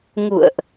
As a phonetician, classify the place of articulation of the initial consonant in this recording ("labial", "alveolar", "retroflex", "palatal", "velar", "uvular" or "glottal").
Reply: velar